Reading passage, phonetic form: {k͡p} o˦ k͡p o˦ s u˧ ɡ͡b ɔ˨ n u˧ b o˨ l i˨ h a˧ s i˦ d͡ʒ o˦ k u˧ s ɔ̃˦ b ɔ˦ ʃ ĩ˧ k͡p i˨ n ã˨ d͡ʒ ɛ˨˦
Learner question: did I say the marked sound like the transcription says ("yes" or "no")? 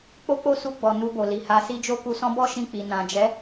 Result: yes